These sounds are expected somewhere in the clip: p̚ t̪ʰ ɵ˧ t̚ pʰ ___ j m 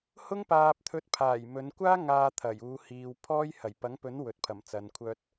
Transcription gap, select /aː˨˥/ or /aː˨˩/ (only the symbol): aː˨˩